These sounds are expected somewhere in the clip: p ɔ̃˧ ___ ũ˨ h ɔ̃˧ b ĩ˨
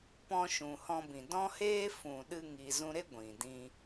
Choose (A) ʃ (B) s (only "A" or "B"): A